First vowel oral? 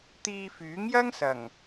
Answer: yes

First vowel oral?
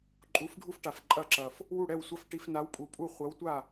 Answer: yes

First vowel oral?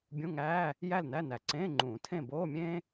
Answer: no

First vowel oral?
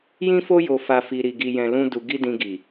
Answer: no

